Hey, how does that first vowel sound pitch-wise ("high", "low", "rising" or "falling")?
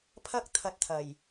high